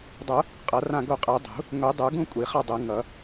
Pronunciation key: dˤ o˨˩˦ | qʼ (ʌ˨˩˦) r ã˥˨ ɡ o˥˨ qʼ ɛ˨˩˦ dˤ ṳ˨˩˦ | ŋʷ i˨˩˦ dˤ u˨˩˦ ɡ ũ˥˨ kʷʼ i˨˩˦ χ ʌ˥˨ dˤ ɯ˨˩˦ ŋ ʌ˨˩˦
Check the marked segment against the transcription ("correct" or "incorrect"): correct